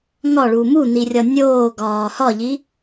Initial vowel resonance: oral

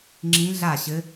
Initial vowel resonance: nasal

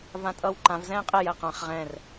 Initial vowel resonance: nasal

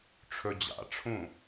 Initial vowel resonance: oral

